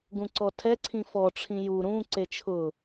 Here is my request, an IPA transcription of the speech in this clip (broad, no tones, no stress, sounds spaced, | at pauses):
ɡ ũ ǀ ɔ tʰ ɛ ǀʰ ĩ f ɔ ʈ͡ʂʰ ĩ j u ɾ ũ ǀ e t͡ʃʰ ʊ